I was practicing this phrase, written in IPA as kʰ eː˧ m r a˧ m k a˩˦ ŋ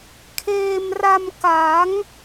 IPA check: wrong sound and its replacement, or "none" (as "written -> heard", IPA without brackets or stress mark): none